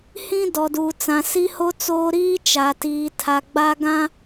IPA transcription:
h ĩ˦ d ɔ˨ d uː˨ t͡s ã˨ s i˦ h o˦ t͡s oː˦ ɾ iː˦ t͡ʃ a˨ t iː˨ tʰ a˨ ɡ͡b a˦ ɡ ã˦

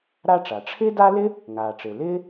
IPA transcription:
ɾ a˥ ʈ͡ʂ a˩ ʈ͡ʂʰ ɪː˥ d a˥ l ɪ˥ | ŋ aː˩ ʈ͡ʂ ɪː˩ l ɪː˥

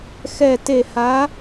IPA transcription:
x ɛ˧˩ t e˧˩ h a˨˥

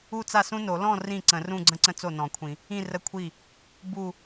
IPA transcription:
u˥˧ t͡s a˥˩ s ũ˥ n o˨˩˦ l ɔ̃˥˧ r ĩ˥˩ ǀ ə̃˨˩˦ r ũ˥˧ ɡ͡ǀ ə̃˥ ǀ ə̃˥ t͡s o˥˩ n ɔ̃˨˩˦ kʷʰ ĩ˨˩˦ | ĩ˥˧ r ə˥˧ kʷʰ i˥˩ | b u˥˧

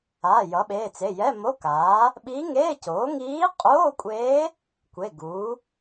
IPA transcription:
aː˩˧˩ j ʌ˩˥ ɓ eː˩˧˩ t͡s e˩˧˩ j ɛ˧˥˧ m o˧˥˧ k aː˩˥ | ɓ i˧˥ ŋ eː˧˥˧ c oː˩˥ ŋ iː˧˥ qʼ oː˧˥˧ kʷʼ eː˧˥ | kʷ e˩˧˩ ɡ uː˩˥

